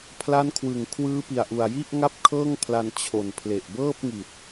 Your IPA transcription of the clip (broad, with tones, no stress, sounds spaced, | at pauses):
pʰ l a˦˥ n kʰ w ɯ˨˩ ŋ kʰ w ɯː˦˥ p i˨˩ a̯ ʔ u˨˩ a̯ j i˥˩ ʔ ŋ a˥˩ p̚ kʰ ɤː˥˩ ŋ pʰ l a˧ n t͡ɕʰ o˨˩ n pʰ l e˨˩ ʔ b ɤː˥˩ p̚ ŋ i˨˩ t̚